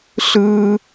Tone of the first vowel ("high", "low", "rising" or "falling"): high